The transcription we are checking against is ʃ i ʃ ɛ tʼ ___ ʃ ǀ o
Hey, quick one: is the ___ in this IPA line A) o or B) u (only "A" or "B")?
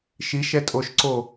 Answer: A